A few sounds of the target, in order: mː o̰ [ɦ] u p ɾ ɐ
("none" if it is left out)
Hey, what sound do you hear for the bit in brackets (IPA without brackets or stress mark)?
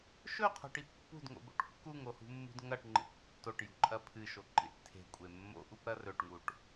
ʔ